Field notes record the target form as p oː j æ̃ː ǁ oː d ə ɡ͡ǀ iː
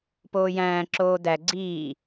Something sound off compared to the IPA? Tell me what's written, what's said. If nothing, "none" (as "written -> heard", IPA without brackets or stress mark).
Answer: ə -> æ